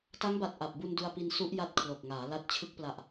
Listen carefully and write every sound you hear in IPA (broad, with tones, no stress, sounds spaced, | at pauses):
t a˦˥ ŋ b a˨˩ t̚ ʔ a˨˩ p̚ b u˧ n d u˧ a̯ p i˧ n s u˦˥ ʔ j a˦˥ t̚ kʰ l o˨˩ k̚ ŋ aː˩˦ l a˦˥ t̚ t͡ɕʰ ɯ˦˥ k̚ p l a˨˩ ʔ